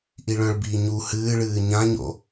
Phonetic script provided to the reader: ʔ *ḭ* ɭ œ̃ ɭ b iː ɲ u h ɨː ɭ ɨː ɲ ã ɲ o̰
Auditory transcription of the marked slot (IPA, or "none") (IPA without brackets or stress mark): i